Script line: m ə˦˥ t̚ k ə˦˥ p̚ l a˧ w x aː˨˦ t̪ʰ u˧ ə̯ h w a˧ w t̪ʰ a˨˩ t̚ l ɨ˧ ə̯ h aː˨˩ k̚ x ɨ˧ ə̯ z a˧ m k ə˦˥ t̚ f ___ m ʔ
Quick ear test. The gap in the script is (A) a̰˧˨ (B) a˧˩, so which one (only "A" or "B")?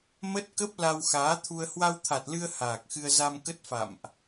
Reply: A